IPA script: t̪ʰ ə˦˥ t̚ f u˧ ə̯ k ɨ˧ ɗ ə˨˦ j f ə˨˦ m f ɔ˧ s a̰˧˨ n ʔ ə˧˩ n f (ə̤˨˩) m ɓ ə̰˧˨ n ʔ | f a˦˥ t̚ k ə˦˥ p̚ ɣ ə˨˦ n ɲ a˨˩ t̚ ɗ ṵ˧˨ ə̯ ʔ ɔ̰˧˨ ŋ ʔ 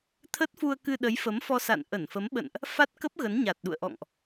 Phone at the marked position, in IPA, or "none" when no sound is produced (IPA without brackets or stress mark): ə˨˦